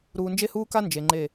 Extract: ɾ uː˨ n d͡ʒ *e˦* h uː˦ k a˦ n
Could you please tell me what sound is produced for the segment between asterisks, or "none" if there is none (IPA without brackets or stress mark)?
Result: e˦